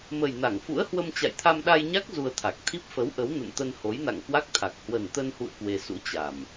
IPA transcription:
mə˨˩j na˧˩ŋfṵ˧˥ə̯hwə˧m t͡ɕa̰˧˨jt̪ʰa˧mɗa˧jɲa˦˥k̚ zu˧ə̯t̪ʰa˨˩k̚ t̪ʰi˦˥p̚fə˨˦w ʔə˨˦wnə̰˧˨nt̪ə˧n ho˨˦jna̰˧˨ŋkwa˦˥k̚t̪ʰa˨˩k̚ hwə˨˩nt̪ə˧nhṵ˧˨ə̯ kwe˧ sṵ˧˥t͡ɕa˨˩m

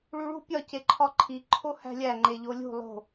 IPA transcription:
ɭuɭṳ pʲɒ ceǃʰɒǃʰi ǃʰohæ̤lʲæ ŋ͡ǃeʎolʲṳ lˠo̤

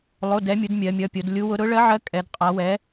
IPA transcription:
lˠo˧˥˧dɛ˧˥ mʲu˧˥d mʲɜ˧˥mʲʌ˧˥˧pʲo˧˥d lʲu˧˥wʊ˧˥ ɾʊ˧˥ɭɜ˧˥ʕɜ˧˥ kʼɛ˧˥d qʼa˧˥wɛ˧˥

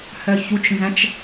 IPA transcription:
hœçut͡ʃnzæ̃t͡ʃ

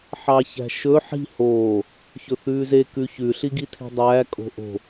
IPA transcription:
ħɑçæ̤ʃɵ ħi̤ hoː | çɵθʉːze kʉçʉ ɬiɡitʰi̤dˤæː kʼo̤ʔo̤

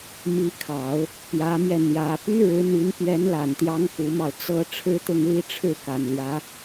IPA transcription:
mi˧˥kʰɑ˨˩˦ʊ̯ | pjä˧˥mjɛ˧ n̪jä˧˥ py˥ɻɻ̩˧˥n̪y˧˥n pjɛ˧˥nla˨˩nt̪jɑ˧˥ŋ ku˧˥mɑ˧ʊ̯t͡sɤ˥ ʈ͡ʂʰɻ̩˥t̪ʊ˥˧ŋli˥˧ ʈ͡ʂʰɻ̩˥˩ka˨˩nljä˧˥

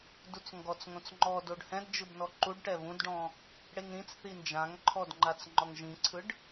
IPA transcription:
dut͡sŋɡɔt͡sŋõt͡s ŋ͡ǃɔ doɖhɛ̃dd͡ʒɯbnɔ ǃuɖʈɛ βũdɖɔ̃ | ɽeŋɾĩt͡s θind͡ʒãŋǃʰɔdŋ͡ǃat͡s ŋ͡ǃɔŋʒĩǀʰɯɖ

